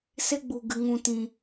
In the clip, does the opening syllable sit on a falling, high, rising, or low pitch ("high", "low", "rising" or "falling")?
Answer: high